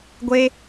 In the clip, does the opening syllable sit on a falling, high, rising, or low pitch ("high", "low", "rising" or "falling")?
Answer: high